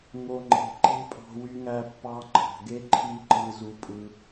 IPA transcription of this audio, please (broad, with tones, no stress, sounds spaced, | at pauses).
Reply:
ŋ o˧ ŋ͡ǃ e̤˨˦ ǃ e̤˦ pʼ ɑ̤˧ w y˧ ŋ æ˧ pː ɑ˧ ŋ͡ǃ ɑ̤˨ ɡ e˦ ǃʰ i˦ ǃ ɯ˧ z u˧ pʼ ɯ˧